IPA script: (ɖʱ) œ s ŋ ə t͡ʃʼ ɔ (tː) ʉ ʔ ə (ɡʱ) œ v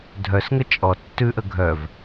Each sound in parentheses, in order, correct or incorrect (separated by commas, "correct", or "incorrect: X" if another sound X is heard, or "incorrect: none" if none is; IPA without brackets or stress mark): incorrect: dʱ, correct, correct